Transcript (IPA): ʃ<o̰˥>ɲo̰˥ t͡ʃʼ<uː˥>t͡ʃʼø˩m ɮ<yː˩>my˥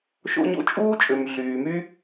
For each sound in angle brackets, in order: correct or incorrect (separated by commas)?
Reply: correct, correct, correct